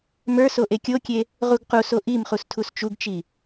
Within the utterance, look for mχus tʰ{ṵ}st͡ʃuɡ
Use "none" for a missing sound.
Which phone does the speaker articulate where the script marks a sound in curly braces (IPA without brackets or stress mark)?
u